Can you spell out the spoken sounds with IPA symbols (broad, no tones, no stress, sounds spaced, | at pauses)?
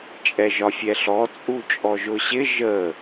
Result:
t͡ʃʼ ɛ ʒ ɒ fʲ ɛ ɬ ɔ t͡sʼ u t͡ʃʼ ɔ ʒ ʊ ɕ ɪ ʒ ə